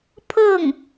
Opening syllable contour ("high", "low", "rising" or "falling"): falling